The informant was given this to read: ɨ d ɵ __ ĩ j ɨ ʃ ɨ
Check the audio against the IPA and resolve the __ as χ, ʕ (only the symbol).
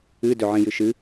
ʕ